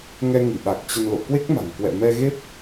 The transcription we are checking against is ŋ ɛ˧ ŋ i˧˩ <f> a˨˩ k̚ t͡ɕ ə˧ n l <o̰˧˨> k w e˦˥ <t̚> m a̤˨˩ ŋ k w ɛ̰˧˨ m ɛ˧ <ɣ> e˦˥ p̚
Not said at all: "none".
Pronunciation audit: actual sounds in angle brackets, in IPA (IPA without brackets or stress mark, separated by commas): ɓ, o̰˧˨, k̚, ɣ